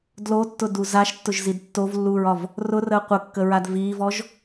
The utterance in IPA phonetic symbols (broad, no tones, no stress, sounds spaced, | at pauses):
d l o tː ʊ d u z a ʃ tː ʊ ʒ z i d tː o v lː uː ɹ ɒ v | r ʊ r əː qʷ ə kː ə ɹ a d v iː v ɔ ʒ